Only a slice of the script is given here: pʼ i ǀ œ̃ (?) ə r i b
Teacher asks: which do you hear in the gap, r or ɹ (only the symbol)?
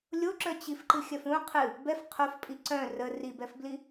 r